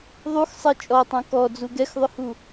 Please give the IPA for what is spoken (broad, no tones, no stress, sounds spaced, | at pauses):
ðˤ u x sˤ ɛ t͡ʃʼ ɔ tˤ õ k ɔ d͡z u ɡ ɛ x ðˤ ʏ h u